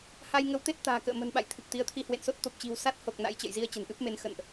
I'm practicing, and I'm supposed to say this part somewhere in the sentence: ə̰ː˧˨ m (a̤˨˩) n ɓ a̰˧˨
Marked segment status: incorrect: ə̤˨˩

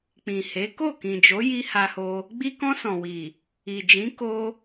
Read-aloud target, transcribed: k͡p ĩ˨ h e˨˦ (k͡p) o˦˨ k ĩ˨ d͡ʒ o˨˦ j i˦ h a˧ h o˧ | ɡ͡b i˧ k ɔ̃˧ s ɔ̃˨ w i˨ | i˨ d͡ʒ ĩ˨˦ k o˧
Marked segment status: incorrect: k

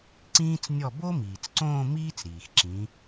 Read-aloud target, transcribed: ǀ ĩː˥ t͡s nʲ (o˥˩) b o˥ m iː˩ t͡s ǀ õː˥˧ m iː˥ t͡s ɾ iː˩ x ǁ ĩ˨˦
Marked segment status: incorrect: ɔ˥˩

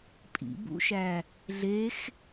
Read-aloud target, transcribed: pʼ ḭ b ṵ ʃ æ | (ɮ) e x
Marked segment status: correct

